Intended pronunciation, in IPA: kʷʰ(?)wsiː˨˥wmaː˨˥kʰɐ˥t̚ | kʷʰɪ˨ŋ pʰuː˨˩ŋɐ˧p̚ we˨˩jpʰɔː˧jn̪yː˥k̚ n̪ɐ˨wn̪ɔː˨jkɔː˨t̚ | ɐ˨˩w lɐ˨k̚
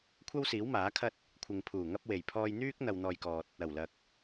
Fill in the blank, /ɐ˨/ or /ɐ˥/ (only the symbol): ɐ˥